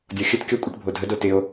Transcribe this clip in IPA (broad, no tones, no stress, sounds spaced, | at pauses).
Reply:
dʲ ɔ xʲ ə t kʲ ɔ kʷʼ ɪ ʈ bʱ o dʱ ə d o t ɪ o̯